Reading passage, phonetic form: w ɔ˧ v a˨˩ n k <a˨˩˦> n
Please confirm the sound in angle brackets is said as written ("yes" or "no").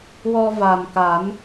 yes